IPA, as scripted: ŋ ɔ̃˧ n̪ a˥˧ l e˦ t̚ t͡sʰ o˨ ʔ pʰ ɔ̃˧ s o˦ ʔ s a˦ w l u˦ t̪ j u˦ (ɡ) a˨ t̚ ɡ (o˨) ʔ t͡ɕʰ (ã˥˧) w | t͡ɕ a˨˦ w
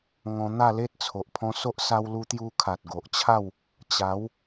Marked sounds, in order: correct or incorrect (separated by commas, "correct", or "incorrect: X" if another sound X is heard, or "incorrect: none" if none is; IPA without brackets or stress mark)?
incorrect: kʰ, correct, incorrect: a˥˧